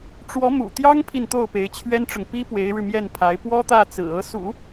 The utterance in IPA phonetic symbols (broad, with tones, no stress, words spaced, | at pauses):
ʈ͡ʂwɔ˧˥mṵ˨˩ t̪jɑ˥ŋpʰi˨n t̪o˥˩ʊ̯pe˧˥ɪ̯t͡ɕʰɥɛ˥nʈ͡ʂʊ˨ŋ pi˥ pwe˧˥ɪ̯ɻɻ̩˧ mjɛ˥˩npʰa˧˥ɪ̯ pwɔ˥t̪ä˥˩t͡sɹ̩˨˩ ɤ˧˥sṵ˨˩˦